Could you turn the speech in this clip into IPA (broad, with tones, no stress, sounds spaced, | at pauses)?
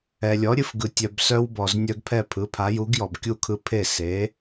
ɛ˨ lʲ ɔ˨˥ ɾʲ ɨ˦ f ɡ ɯ˨ tʲ œ˨ b s œ˦ w b ɔ˨ z nʲ œ˦ ɡ pʰ ɛ˥˨ pʰ ɯ˨˥ pʰ a˨˥ j u˨˥ ɡ j ɔ˨ b kʲ u˥˨ kʰ ɯ˦ pʰ e˥˨ s e˨˥